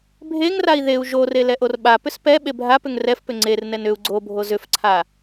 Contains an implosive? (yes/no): yes